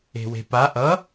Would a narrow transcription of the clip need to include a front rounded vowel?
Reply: no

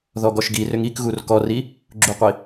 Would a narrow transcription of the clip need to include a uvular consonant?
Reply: yes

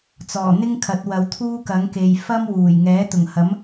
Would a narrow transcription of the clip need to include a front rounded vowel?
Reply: no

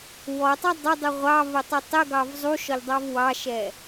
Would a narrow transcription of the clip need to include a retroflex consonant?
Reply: no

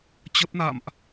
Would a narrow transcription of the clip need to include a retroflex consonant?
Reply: no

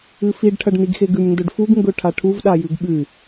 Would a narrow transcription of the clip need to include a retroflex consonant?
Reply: yes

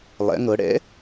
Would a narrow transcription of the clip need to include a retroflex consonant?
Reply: yes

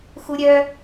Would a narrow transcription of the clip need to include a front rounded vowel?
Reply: yes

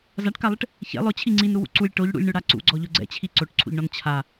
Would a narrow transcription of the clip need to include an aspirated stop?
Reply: yes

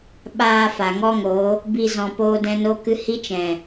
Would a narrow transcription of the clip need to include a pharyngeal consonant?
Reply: no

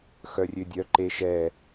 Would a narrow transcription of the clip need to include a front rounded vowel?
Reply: yes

